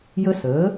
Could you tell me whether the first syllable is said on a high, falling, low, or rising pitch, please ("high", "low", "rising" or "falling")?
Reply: high